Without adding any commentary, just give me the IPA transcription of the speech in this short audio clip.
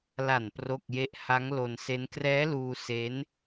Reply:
l a˨˩ n p r o˥˩ k̚ j e˥˩ ʔ h a˦˥ ŋ l o˧ n s e˦˥ n k r ɛː˦˥ l uː˧ s e˦˥ n

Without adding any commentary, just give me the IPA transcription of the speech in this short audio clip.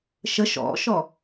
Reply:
ʃ ə ʃ ɔ̰ ʃ ɔ

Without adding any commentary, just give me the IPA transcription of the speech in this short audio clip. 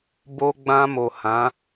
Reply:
b o˧ ɡ͡b ã˧ m o˨ h ã˨˦

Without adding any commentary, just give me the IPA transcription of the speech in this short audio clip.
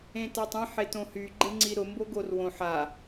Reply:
ẽ t a tˤ ĩ ħ e t õ h y ɡ͡ǃ e ŋ͡ǀ i ɾ ʊ m b o ɡ o r w õ ħ a

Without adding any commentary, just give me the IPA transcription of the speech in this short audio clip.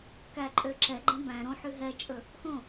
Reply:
k æ ǃʼ ø ǁ ɛ ɡ͡ǃ ɛ̃ b æ̃ ɾ õ ħ ʉ ɦ ɛ t͡ʃʼ ɵ | x õ

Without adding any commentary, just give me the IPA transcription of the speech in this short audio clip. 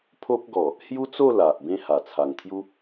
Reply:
pʰ o˦ p̚ ɡ ɔ˨˩ | h j u˦ t͡s o˥˧ l a˨ ʔ b ẽ˥˧ h a˨˩ t͡sʰ a˨˩ ŋ t̪ʰ j u˦

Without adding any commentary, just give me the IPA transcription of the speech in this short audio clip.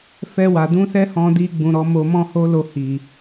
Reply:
f ɛ˧ w a˨ d ũ˧ s ɛ˦ h ɔ̃˧ d i˧ ɡ͡b ũ˨ ɾ ɔ˨˦ m o˧ m ɔ̃˦ h o˦ l o˧ h i˨

